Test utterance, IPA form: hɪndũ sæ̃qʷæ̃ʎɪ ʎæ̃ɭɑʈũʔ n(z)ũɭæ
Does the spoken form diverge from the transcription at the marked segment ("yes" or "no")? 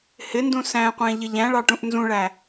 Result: no